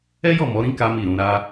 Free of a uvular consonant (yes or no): yes